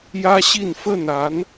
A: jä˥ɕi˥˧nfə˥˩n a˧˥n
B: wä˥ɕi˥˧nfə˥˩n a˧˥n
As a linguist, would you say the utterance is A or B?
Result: A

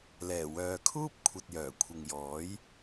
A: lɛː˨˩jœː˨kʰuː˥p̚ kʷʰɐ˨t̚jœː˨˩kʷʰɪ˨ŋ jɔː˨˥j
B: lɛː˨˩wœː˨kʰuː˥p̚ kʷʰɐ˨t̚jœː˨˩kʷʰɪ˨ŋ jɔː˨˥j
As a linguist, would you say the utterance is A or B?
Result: B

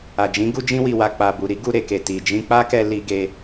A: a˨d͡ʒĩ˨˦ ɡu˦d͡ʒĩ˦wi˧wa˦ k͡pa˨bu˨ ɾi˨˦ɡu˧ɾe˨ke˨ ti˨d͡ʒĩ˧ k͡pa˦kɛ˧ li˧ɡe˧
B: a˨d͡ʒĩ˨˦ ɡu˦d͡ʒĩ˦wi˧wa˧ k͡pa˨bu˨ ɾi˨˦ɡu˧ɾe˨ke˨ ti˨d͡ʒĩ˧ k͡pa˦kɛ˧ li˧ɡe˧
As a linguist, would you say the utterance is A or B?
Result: B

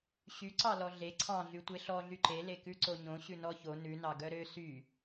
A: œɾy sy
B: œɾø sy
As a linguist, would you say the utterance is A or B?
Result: B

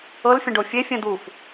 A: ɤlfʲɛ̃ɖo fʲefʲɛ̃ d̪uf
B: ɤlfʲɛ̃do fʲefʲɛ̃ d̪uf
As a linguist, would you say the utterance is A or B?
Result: A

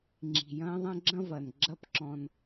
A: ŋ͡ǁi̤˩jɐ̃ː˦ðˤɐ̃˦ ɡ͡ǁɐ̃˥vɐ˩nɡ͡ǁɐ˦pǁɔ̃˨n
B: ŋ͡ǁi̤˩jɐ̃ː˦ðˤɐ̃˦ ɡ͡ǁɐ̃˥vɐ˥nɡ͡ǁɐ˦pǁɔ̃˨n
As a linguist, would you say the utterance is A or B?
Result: A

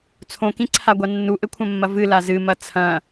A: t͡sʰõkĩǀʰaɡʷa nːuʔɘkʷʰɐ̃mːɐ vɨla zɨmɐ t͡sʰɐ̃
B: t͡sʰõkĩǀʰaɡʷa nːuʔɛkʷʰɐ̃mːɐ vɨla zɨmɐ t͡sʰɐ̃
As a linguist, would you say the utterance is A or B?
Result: A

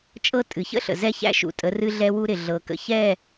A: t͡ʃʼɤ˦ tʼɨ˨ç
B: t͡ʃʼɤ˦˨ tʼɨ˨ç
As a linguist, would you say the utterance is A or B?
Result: A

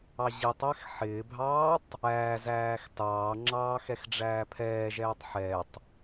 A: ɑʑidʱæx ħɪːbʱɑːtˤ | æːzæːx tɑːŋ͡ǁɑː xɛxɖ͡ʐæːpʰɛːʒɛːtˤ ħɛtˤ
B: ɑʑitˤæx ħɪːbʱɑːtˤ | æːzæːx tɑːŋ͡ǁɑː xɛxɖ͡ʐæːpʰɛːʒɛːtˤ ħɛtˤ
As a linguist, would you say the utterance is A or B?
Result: B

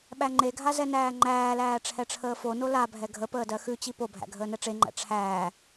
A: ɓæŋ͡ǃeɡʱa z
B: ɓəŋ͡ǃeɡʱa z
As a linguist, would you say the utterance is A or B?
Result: A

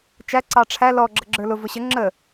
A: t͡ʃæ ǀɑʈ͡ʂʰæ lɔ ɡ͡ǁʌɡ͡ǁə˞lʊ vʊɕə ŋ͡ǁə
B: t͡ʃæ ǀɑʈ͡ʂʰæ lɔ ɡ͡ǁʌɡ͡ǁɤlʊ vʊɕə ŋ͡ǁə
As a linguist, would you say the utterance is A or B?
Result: A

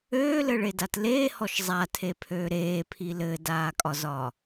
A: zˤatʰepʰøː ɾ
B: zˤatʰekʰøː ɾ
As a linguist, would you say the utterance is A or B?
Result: A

